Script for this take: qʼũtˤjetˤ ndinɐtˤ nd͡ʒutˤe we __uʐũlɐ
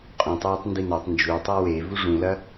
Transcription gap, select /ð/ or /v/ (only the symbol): v